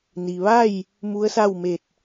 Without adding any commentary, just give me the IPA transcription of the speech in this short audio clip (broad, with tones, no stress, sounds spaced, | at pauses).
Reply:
n i˩ ʋ a˥˨ j | m u˧˥ ə̯ s a˥˨ w m e˧˩ t̚